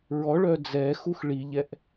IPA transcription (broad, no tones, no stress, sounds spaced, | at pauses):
ɹ ɔ ɭ œ d͡z ɛ x u x ɭ i ʎ ɛ ʔ